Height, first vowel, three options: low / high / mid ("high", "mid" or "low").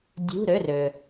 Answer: high